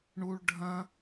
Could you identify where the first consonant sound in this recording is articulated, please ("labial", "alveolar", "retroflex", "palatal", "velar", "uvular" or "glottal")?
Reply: retroflex